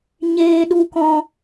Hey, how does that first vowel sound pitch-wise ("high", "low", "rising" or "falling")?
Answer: high